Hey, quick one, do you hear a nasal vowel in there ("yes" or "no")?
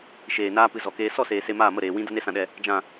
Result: yes